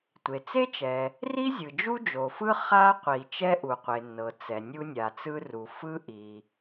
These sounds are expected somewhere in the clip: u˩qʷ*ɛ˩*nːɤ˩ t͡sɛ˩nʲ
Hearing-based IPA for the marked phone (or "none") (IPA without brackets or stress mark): e˩